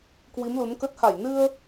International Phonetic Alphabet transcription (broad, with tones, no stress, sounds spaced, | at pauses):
k w i˨˦ m l u˨˦ n k ə˦˥ t̚ h a˧˩ j n ɨ˧ ə̯